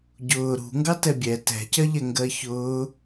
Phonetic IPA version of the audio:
ɟ ʊː ɾ ṳ ŋ ɡ ɑ t ɛ bʲ ɛ t ɛ̤ c ɜ ʎ ɛ ŋ ɡ ɜ ç ʊː

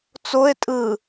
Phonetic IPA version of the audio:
t͡s o e̯ tʼ ɯ

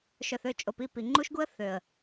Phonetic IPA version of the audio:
ʃ œ˨ θ ø˦˨ t͡ʃʼ o˨ p i˦˨ p i˨ ŋ͡ǃ u˦ ʃ ɡ u˦ ə̯ θ ø˨ ə̯

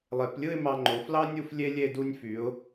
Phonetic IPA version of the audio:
lˠ e˩˧ p lʲ ɯ˥˧ ɪ̯ m ɑ˧ ŋ͡ǃ o˩˧ f l ɑ˥ nʲ u˥ f lʲ e˥ lʲ e˥˧ d u˧ nʲ f y˩˧ ʊ̯

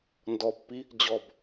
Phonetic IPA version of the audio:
n d ɔ pː i | d͡ʑ ɔ b

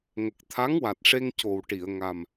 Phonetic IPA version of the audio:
ŋ ə˨˩ k̚ t̪ʰ a˧˥ ŋ w a˨˩ t̚ ʂ e˧ ŋ c o˨˩ w ʈ i˨˩˨ ə̯ ŋ a˨˩ m

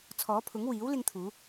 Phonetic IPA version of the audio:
t͡sʰ ɔː˨˥ pʰ ʊ˨˥ ŋ w iː˨˥ w l ɪ˧ ŋ t̪ʰ uː˨˧

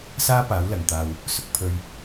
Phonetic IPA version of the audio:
s aː˥ p aː˨˥ w l ɐ˨ ŋ t̪ aː˧ w | s ʊ˧ k̚ pʰ ɵ˧ ɥ

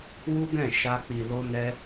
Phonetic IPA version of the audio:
w u˦ ɡ ɛ̃˦˨ ʃ a˧ k͡p i˨ l o˧ n ɛ˧

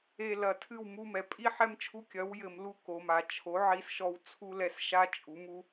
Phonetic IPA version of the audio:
e˨ l ɐ˨ tʰ ɨ˦˨ w m u˧ m ɛ˨ pʼ i˦ ħ ɛ˦ m t͡ʃʰ u˦ kʲ ɐ˨˦ w j ɘ˨ m l u˧ k o˨ m a˨ t͡ʃʰ o˨˦ ʕ i˧ s ʃ ɔ˧ w t͡sʰ u˦ l ɛ˧ s ʃ a˦ t͡ʃʼ u˨˦ m u˦

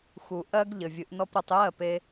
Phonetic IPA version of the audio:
x u˨ ʔ ɜ˦ ɡ ʎ ɘ˨ vʲ ɨ˨˦ ʔ n ɔ˦ p ɾ ɨ˧ tˤ j ɜ˦˨ p e˧

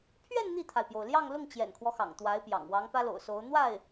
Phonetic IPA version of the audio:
pʰ ɥ ɛ˥˧ n n̪ i˥˩ t̪ʰ a˩ ɪ̯ p j o˩ ʊ̯ l j ɑ˥˧ ŋ l ʊ˥˩ ŋ t͡ɕ j ɛ̰˨˩ n kʰ w ɔ˦ x ɑ̰˨˩ ŋ t̪ w a˧˥ ɪ̯ p j ɑ̰˨˩ ŋ w ɑ˧˥ ŋ p ä˥ l o̰˨˩ ʊ̯ s o˧˥ ʊ̯ n̪ w a˥˩ ɪ̯

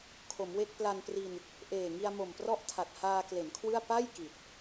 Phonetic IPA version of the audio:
kʰ o˩˦ m w e˥˩ k̚ p l a˧ n p r i˧ n | ʔ eː˨˩ ŋ i˧ a̯ m o˨˩ m p r ɔ˥˩ ʔ tʰ a˨˩ t̚ h aː˧ k l e˩˦ n kʰ w ɯ˥˩ a̯ p a˥˩ j k i˨˩ t̚

